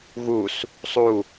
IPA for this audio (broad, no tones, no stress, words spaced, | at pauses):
ɣus | sˤu